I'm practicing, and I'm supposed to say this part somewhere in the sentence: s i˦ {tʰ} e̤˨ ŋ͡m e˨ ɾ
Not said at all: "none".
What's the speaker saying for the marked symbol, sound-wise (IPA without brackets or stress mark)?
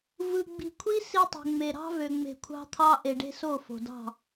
tˤ